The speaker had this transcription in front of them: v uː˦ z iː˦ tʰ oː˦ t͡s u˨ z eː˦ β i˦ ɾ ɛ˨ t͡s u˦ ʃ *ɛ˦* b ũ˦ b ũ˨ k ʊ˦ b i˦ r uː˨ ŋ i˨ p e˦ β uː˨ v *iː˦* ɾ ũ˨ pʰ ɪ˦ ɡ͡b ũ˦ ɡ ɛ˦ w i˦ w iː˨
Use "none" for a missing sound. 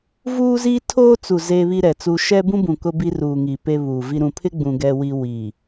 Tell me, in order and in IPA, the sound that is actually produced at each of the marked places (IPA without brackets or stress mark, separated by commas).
ɛ˦, i˦